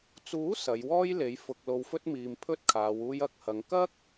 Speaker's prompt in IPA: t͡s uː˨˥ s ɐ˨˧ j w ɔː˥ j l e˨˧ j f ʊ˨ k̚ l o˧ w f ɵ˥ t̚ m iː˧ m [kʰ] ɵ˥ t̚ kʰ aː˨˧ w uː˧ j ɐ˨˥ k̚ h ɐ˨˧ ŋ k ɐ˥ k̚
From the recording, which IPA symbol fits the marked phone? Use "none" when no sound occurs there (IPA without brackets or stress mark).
pʰ